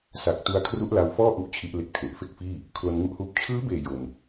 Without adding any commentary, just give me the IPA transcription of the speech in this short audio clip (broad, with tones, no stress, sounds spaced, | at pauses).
s a˨˩ k̚ t u˧ a̯ kʰ r u˦˥ ʔ l a˧ w f ɔː˥˩ ʔ u˥˩ ʔ t͡ɕʰ i˦˥ ʔ l e˦˥ k̚ tʰ e˨˩ ʔ f e˥˩ k̚ f iː˥˩ | kʰ l o˧ n ŋ u˦˥ ʔ h uː˦˥ p̚ t͡ɕʰ ɯː˦˥ b eː˨˩ j o˧ n